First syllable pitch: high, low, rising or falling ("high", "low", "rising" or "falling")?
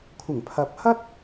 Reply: low